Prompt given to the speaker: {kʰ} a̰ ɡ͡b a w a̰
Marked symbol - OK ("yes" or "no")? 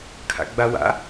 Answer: yes